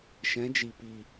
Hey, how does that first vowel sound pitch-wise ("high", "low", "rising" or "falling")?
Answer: rising